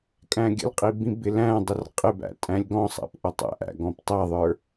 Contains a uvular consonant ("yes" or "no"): yes